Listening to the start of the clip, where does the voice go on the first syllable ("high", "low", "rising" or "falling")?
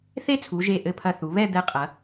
high